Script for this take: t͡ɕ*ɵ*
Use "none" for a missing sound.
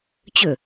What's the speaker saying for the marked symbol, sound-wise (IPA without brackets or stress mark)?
ɵ